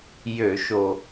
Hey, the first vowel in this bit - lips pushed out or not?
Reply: yes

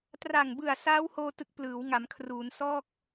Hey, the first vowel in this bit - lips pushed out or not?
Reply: no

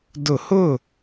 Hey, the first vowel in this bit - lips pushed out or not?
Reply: yes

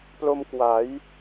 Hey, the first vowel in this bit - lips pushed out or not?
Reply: yes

